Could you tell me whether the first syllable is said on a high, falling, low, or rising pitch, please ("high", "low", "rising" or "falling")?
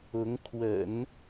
rising